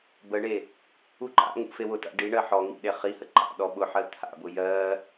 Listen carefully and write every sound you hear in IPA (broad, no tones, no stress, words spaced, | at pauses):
bəɳe | uǃa̰ŋṵ fewʊta̰ ɖiɳɜ ħɔ ŋḭɗe χihə ǃa̰ ɗɔɓʊħɜ t̪ʰa̰bʊ jɜ